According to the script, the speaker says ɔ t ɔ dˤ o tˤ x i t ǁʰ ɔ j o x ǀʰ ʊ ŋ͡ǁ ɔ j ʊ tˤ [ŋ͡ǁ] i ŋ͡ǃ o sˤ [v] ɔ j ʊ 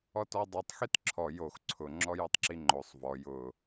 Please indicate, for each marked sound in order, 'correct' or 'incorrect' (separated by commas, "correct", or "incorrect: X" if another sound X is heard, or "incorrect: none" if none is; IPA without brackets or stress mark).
incorrect: ǁ, correct